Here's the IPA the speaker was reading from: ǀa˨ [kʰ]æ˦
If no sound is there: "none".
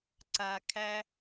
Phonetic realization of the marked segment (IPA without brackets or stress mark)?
kʰ